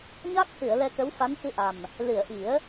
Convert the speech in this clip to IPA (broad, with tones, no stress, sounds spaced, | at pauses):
ɲ a˦˥ k̚ c ɨ˨˩˨ ə̯ l ɛ˧ k ə˧˥ w f a˧˥ n c ɨ˧ ʔ a˨˩ m | l ɨ˨˩˨ ə̯ ʔ i˨˩˦ ə̯